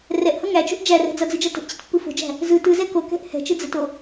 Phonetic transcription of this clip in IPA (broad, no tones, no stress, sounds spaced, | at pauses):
r ɛ ʔ h ʌ ŋ æ t͡ʃ o̤ ʔ d͡ʒ æ r ɛ̤ d͡z ʌ d͡z ɯ d͡ʒ ʌ t ə̤ ʔ t͡ɕ ə̤ t pː ɯ f o̤ d͡ʒ æ̤ | z ɯ t ɯ z ɛ k o k ɛ̤ ʔ h ɛ̤ t͡ʃ ɯ d͡z ə t o